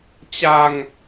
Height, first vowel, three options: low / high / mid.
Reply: low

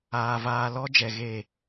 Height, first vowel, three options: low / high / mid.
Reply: low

